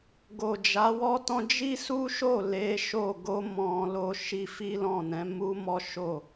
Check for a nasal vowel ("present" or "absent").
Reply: present